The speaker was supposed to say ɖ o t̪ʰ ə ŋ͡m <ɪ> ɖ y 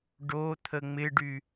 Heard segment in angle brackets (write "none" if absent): ɪ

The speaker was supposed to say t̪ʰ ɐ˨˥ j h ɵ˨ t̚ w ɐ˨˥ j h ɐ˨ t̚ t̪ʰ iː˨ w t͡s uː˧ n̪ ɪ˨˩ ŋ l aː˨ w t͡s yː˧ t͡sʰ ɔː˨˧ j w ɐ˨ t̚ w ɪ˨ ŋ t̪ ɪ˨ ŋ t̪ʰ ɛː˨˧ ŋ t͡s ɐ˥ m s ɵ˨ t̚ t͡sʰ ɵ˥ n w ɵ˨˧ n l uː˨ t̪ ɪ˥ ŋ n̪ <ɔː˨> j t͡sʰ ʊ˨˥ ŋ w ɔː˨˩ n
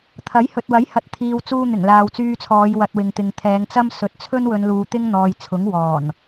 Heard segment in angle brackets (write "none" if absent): ɔː˨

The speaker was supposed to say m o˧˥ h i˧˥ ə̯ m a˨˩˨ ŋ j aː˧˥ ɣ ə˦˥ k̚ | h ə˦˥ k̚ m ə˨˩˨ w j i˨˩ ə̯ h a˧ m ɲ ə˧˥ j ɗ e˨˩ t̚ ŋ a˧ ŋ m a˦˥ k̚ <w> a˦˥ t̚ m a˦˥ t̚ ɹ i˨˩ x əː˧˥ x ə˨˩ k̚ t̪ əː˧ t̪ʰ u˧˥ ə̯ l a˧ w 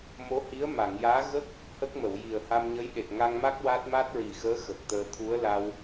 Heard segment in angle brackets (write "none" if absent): w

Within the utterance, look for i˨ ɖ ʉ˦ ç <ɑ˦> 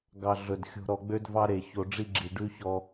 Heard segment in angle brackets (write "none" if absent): ɔ˦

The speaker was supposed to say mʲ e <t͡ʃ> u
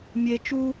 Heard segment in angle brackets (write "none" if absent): t͡ʃ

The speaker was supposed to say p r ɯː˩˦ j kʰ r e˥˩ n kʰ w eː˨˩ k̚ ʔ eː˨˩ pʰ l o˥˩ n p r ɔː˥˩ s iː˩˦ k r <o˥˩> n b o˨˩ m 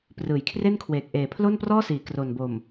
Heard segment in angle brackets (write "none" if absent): o˨˩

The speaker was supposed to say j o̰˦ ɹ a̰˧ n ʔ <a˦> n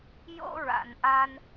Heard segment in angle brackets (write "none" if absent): a˦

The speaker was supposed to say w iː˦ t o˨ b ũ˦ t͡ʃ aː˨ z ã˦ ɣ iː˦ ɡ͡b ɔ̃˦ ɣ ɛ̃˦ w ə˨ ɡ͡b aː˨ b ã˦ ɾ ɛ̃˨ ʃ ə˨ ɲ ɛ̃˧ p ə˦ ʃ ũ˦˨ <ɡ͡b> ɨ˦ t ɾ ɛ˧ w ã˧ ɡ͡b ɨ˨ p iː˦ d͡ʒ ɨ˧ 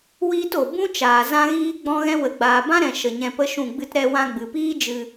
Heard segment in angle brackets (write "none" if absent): ɡ͡b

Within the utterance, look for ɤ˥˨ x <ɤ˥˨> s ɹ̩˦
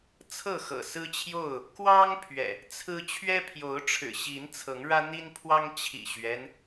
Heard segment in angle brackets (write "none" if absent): ɤ̰˨˩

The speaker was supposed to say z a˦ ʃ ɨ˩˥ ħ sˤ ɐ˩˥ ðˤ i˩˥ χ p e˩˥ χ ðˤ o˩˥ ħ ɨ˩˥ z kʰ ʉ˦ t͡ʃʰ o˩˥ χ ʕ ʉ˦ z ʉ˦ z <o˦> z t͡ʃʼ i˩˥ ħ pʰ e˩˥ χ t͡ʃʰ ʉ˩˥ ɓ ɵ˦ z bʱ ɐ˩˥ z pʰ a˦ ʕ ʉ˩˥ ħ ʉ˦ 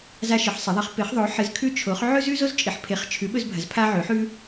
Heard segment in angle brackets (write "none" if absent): o˦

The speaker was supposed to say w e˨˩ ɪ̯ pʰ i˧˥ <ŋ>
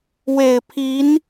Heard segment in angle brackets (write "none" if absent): n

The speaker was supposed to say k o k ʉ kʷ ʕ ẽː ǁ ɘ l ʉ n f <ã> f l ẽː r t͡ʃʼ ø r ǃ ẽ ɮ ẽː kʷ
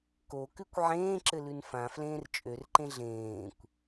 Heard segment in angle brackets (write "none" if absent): ã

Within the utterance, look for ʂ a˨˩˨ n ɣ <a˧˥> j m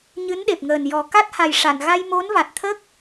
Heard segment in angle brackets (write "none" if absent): a˧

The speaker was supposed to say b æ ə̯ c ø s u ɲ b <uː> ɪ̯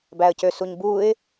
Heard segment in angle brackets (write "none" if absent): uː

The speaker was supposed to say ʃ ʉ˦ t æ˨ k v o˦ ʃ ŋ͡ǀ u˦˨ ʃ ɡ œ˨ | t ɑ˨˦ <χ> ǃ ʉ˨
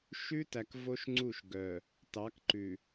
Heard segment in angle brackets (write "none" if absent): k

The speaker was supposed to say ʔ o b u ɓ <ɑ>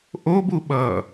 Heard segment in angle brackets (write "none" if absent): ʌ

